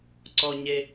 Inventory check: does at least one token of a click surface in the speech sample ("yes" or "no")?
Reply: yes